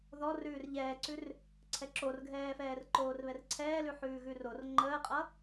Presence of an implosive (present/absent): absent